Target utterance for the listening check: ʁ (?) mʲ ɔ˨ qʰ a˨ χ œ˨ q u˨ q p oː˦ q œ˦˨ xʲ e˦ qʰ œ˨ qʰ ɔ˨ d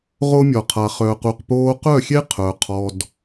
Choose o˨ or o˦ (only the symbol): o˦